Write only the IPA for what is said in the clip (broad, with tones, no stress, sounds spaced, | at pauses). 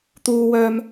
t̪ uː˥ w œː˥ m